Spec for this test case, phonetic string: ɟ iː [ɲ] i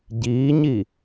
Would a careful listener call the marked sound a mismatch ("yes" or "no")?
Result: no